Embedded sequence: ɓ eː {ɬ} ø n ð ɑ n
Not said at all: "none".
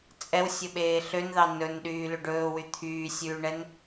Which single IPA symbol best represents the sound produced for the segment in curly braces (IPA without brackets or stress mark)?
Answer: ɬ